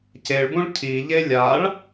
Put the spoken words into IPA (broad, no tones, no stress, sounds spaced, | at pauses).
c e ɭ b ũ ɭ cʰ i ʎ e lʲ a ɭ